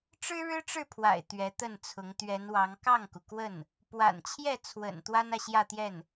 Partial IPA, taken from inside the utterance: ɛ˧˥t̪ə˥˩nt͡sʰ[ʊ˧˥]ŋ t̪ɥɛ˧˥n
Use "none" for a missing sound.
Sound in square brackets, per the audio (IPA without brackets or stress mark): ʊ˧˥